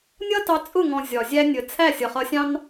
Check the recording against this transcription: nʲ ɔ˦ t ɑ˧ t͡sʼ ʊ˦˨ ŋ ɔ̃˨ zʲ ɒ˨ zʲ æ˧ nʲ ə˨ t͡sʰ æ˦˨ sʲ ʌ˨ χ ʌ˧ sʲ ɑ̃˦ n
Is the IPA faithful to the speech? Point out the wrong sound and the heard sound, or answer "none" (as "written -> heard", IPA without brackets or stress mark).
ɔ˦ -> ʌ˦